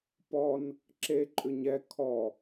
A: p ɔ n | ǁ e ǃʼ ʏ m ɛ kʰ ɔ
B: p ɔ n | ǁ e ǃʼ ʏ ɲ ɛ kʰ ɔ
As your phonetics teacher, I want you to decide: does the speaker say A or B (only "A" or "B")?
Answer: B